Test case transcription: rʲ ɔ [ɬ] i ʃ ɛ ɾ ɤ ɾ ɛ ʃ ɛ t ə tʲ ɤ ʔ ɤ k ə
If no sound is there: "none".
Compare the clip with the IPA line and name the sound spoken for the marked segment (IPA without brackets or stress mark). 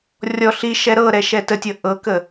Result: ɬ